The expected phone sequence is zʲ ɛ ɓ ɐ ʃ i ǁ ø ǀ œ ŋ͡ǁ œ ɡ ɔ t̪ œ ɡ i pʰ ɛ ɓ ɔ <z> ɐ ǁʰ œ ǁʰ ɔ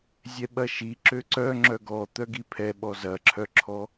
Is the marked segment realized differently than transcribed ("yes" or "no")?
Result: no